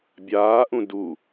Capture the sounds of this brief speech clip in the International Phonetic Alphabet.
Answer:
bʲaːʔũ du

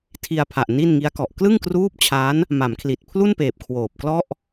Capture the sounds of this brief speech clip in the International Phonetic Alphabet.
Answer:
tʰi˧a̯pʰa˨˩ʔ ni˥˩n ŋi˦˥a̯kɔ˨˩ʔ klɯ˥˩ŋkruː˦˥p̚ t͡ɕʰa˦˥n | ma˩˦mkʰli˨˩t̚ pʰlu˥˩npeː˨˩p̚ kʰwoː˨˩p̚klɔ˥˩ʔ

